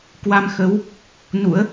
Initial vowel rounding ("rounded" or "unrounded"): unrounded